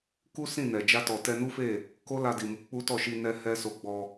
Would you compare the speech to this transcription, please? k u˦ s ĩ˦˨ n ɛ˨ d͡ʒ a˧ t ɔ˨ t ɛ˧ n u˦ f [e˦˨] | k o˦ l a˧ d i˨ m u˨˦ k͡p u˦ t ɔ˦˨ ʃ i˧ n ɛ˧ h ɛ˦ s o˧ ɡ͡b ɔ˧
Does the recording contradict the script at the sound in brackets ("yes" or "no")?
no